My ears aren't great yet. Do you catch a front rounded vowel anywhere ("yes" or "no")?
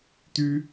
yes